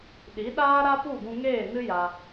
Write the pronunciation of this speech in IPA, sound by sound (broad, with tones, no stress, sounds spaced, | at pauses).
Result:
ɗ i˨˦ ɗ aː˦ ɾ a˦ p u˦˨ ɡ ũ˧ ŋ eː˦˨ n ɨ˦ j a˧